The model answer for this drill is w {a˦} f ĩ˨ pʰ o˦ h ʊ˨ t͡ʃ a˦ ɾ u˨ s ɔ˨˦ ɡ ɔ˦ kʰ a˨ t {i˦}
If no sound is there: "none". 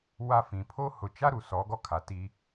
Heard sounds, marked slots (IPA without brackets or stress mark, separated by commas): a˦, i˦